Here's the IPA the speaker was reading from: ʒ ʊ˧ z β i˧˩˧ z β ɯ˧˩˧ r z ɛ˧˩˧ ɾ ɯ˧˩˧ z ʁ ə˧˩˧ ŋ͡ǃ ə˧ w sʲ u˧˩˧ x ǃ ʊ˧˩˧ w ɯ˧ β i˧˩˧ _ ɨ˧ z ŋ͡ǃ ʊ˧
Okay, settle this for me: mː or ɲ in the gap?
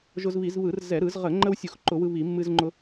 mː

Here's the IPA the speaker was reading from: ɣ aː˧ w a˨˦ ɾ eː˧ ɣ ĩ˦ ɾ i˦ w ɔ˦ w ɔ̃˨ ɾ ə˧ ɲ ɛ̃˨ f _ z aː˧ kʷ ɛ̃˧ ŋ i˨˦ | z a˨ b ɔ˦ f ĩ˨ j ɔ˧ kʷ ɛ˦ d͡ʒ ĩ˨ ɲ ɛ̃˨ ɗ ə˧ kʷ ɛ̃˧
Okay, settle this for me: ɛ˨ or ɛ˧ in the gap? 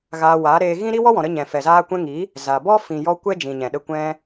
ɛ˨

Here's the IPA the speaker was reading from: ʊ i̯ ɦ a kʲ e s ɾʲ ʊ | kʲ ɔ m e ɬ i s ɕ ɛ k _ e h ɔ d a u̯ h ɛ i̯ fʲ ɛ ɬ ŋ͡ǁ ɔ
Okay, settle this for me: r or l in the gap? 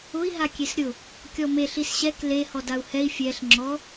l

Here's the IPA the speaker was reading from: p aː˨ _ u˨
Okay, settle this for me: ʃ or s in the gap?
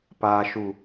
ʃ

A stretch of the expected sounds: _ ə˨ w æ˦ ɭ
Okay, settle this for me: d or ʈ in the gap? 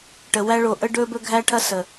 ʈ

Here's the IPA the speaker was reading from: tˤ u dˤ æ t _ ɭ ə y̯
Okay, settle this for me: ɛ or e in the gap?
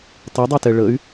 ɛ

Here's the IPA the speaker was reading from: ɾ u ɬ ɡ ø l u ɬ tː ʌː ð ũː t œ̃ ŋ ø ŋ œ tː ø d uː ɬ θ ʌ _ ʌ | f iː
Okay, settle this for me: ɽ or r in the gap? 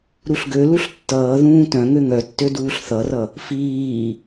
r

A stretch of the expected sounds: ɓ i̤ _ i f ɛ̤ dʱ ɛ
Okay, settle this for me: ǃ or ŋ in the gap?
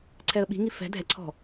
ŋ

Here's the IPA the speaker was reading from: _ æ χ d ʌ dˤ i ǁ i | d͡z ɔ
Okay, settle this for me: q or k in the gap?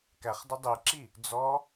k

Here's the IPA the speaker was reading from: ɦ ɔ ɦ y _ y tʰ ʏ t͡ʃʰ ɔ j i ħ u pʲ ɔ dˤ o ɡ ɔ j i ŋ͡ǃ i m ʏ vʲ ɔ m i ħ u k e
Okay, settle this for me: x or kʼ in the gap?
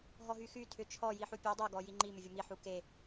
x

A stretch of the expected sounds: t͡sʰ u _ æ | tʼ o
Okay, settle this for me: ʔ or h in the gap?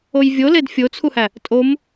h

